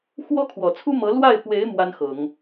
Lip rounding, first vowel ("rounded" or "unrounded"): rounded